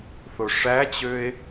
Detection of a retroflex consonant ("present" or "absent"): present